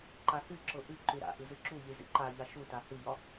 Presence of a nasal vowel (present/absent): absent